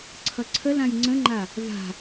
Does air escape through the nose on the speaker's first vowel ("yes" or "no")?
no